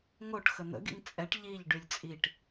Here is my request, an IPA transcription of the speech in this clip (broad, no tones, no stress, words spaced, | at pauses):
ŋoʈ xən̪ə̰ɡḭŋ t͡sʼɛʈ ʎiʎ ɖylʲt͡sʼiʈ